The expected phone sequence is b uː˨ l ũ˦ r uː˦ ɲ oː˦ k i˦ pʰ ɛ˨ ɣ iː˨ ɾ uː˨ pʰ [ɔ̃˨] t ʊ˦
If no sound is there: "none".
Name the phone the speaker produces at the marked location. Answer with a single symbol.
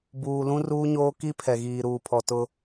ɔ˨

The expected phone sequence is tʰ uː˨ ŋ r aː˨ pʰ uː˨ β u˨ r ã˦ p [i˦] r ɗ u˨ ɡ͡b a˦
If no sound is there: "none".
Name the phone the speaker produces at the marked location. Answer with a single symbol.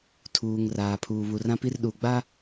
i˦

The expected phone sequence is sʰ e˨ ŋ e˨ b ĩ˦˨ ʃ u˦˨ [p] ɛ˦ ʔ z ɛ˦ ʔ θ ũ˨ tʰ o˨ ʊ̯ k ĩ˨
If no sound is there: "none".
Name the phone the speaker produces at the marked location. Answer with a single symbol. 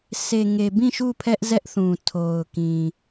pʰ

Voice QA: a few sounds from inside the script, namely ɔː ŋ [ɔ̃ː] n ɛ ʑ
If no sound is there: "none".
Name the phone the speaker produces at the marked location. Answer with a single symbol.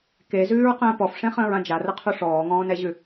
ɔ̃ː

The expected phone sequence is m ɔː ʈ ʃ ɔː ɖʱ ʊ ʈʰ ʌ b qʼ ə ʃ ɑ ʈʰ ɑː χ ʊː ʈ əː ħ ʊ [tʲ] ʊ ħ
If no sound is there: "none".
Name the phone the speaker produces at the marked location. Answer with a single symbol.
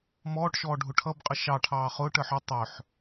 tˤ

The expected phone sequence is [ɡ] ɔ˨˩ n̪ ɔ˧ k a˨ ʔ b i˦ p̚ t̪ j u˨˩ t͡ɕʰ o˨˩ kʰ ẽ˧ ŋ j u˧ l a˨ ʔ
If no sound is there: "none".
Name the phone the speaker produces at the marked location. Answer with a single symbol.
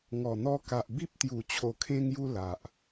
ŋ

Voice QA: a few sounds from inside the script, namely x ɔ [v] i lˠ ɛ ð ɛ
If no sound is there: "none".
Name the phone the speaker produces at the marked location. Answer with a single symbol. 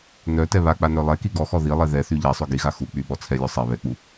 ð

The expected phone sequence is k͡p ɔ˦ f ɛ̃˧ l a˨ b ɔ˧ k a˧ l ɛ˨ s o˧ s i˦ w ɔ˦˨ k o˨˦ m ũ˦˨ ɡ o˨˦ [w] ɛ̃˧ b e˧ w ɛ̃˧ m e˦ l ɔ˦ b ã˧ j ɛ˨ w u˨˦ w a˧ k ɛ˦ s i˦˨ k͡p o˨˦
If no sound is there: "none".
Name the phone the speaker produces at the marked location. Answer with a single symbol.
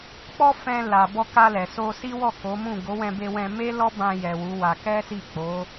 w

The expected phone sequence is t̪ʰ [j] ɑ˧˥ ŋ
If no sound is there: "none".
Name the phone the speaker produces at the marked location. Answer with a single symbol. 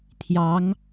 j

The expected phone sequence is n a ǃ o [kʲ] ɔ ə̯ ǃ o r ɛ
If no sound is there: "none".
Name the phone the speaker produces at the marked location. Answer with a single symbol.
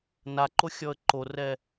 xʲ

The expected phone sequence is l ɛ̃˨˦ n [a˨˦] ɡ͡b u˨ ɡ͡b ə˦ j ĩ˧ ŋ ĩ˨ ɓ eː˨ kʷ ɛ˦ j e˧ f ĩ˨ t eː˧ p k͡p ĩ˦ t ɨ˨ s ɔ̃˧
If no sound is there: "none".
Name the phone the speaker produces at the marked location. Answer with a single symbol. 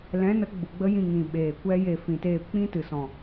ə˨˦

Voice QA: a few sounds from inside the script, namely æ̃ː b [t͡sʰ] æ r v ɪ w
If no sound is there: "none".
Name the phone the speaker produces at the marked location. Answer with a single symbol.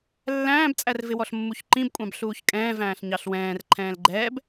t͡sʼ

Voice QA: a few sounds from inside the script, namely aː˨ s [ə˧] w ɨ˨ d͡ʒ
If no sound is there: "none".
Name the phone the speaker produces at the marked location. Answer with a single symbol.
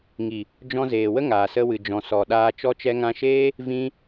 ə˧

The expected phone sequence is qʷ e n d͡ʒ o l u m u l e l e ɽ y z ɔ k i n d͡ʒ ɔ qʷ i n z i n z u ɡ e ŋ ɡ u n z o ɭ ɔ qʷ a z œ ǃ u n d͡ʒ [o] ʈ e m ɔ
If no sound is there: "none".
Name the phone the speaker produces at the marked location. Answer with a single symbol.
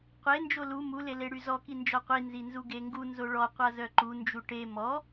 u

